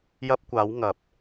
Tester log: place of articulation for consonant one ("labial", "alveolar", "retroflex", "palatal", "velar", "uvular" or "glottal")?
palatal